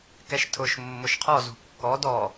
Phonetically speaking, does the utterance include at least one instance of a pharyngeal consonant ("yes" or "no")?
no